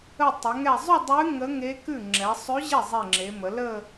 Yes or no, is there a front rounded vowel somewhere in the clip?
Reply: no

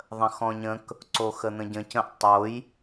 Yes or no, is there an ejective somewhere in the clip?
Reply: no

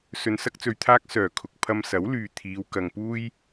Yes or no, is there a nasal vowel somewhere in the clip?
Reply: no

